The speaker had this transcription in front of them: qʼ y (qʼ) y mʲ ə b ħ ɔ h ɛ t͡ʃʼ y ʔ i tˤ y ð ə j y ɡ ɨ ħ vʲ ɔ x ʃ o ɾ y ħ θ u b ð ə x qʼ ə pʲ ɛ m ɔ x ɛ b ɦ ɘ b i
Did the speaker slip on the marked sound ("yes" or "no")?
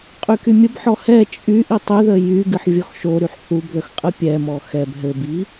yes